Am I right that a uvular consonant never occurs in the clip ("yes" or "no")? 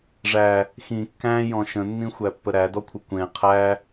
no